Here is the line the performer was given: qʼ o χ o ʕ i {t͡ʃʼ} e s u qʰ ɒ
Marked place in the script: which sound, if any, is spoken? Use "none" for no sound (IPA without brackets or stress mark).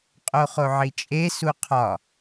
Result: t͡ʃʼ